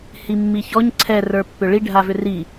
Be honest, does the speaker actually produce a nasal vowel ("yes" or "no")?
no